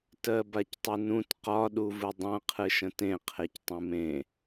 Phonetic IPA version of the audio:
t ɜ b a c tˤ ɨ n ũ t q ɒ ɗ u v ɨ dˤ ã qʰ ɨ ʃ ə̃ t ẽ qʰ e c tˤ ũ m ẽ

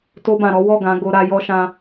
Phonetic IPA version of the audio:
t o˧ b ã˨ ɾ ɔ˨˦ w ɔ˦˨ ɡ ã˨˦ ɡ o˧ ɾ a˧ j ɔ˦ ʃ ã˦

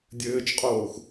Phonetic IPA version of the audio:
dʲ ɘː t͡ʃ qʼ oː x

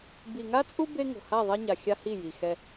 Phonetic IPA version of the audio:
b i˨ ŋ a˦ t͡sʼ u˦ b e˦ ŋ o̤˨ h a˦˨ ðˤ ɛ˦ ɲ a˨ xʲ a˦ h i˦˨ j i˨ x ɛ˦

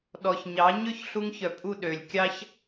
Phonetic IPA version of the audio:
ɗ ɔ˨ ç ɲ ɑ˨˦ ɲ ø˦ ç ɬ u˧ ŋ ç œ˨ pʼ u˦˨ ɗ ø˨ lʲ kʲ ɑ˦ ç

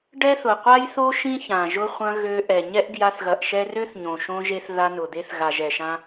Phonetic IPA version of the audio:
ɖ ɛ˦ θ ʊ˨ qʷ a˦ j θ o˦ ʃ ĩ˦ ç ã˨ ʒ ʊ˧ χʷ ɐ̃˧ ɣ ø˧ ʔ ɛ˨ ɲ ɛ˦ ʔ ɡ j a˧ θ ɣ ɐ˨ ʔ ʃ ɛ˧ r ø˦ θ ɲ õ˨ ʃ õ˧ ʒ e˧ θ ð a˧ n ʊ˨ d̪ e˧ θ ɣ a˨ ʒ ɛ˨ ʃ ã˧

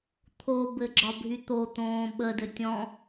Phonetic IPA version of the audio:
t̪ʰ o b ɘ ɡ͡ǁ ɒ bʱ y t̪ o t̪ õː ɓ ə d ɘ tʲ ɔ̃

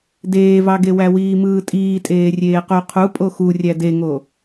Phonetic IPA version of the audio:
d eː v ɑ ɡ e w æ w iː m ɯː tʼ iː tʼ eː rʲ eː q o qʰ u pʼ o x u rʲ æ d e ŋ o

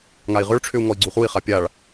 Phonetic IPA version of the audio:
ŋ a i̯ ʁ ʏ ɭ ʈ͡ʂʰ ʏ u̯ ŋ ɔ i̯ ɡ͡ǀ u χ u i̯ χ a pʲ a ɭ

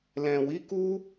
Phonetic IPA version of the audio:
l ɛ̃˨ w i˨˦ k u˦

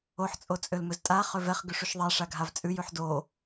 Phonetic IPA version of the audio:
o ħ t͡sʼ o t͡sʼ ø l m ɵ z tʼ a χ ø v ɛ χ ɡ ʉ ʂ u ʃ ðˤ ɛ ʂ a ɡʱ a v t͡sʼ ʉ j ʉ ħ d o

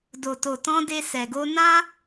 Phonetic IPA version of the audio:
d o˨ t o˨ t ɔ̃˧ d e˧ s ɛ˨ ɡ o˧ n ã˦

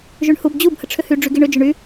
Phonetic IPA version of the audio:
ʒ y ɳ h u b d͡ʑ u b h ə ʈ͡ʂʰ ʏ h y ɖ͡ʐ y ɡ i ɳ ʏ d͡ʒ ʏ ɳ y

